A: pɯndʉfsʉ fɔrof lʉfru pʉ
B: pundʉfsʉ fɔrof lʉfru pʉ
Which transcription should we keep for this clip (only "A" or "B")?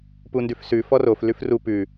B